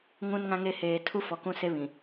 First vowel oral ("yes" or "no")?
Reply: no